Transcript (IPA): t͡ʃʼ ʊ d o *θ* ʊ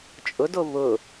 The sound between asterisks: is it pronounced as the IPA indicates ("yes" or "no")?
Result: no